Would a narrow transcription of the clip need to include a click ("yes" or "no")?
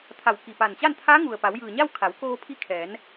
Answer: no